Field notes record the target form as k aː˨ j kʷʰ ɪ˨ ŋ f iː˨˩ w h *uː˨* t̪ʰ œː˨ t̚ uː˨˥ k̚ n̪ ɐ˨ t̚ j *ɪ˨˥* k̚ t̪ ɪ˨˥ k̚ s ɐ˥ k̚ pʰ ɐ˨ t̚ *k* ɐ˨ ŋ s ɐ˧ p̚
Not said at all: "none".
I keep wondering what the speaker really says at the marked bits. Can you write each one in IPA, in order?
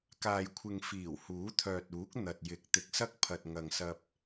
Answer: uː˨˥, ɪ˨˥, ŋ

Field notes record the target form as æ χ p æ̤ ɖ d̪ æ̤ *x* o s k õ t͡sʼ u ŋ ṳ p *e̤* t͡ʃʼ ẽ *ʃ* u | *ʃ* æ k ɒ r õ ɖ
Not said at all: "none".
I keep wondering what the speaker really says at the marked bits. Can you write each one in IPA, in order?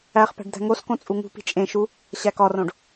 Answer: ŋ, i̤, ʃ, ɕ

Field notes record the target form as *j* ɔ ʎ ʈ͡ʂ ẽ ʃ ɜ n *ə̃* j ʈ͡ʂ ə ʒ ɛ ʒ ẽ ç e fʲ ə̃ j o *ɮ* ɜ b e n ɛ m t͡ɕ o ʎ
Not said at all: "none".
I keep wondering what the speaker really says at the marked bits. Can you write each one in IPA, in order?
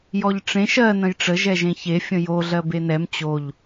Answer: j, ə̃, ɮ

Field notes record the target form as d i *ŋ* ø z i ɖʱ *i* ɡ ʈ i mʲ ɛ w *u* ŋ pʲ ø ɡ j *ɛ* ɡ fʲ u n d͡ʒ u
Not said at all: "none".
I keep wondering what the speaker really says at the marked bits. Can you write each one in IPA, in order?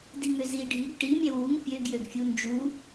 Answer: ŋ, i, u, ø

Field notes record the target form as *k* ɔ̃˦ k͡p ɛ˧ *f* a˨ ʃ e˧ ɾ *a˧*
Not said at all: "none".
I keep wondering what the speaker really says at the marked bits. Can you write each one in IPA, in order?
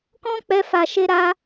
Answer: k, f, a˧

